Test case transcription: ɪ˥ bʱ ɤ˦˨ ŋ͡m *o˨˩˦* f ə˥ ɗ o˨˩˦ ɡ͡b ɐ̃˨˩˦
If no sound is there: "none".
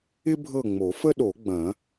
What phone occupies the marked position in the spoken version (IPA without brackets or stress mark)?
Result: o˨˩˦